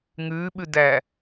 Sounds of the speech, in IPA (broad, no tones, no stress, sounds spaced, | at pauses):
ŋ ʉː ɓ ʉ d æ